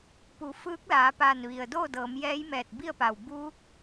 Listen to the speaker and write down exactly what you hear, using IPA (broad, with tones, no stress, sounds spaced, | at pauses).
p u˩˧ f ɯː˧˥ k̚ l aː˩˧ p aː˧˩ n ʋ i˩ ə̯ d oː˥˨ d ɤː˩˧ m j ɛː˧˥ j m ɛː˧˩ t̚ b i˥˨ ə̯ p a˧˩ w b uː˧˥ k̚